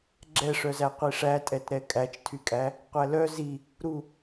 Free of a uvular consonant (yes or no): no